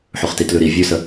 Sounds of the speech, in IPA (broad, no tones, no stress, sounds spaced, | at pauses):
ħ ʉ χ t i t l ʉ ɾ i vʲ ʉ s ə